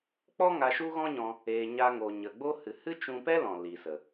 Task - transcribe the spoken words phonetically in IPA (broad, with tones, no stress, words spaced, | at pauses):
k͡pɔ˦ŋa˧ ʃu˦ɣɔ̃˦ɲɔ̃˧ | eː˧ɲa˦ŋo˧ ɲə˨ɡ͡bo˦ hɨ˨hɨ˦t͡ʃũ˧pɛ˦ lɔ̃˨ li˨sə˨